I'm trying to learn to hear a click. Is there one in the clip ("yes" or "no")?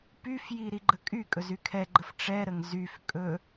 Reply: yes